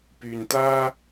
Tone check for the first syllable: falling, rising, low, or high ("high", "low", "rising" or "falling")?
low